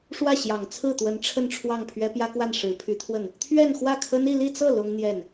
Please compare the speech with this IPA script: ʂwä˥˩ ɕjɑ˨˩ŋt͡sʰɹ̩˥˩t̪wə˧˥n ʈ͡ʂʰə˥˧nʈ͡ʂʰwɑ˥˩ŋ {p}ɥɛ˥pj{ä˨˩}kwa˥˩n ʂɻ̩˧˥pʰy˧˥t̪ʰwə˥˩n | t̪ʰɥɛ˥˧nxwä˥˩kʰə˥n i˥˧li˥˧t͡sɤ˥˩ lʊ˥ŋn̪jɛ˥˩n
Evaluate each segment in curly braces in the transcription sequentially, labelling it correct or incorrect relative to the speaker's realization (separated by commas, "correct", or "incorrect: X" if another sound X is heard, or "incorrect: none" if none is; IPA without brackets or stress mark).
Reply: incorrect: pʰ, incorrect: ä˥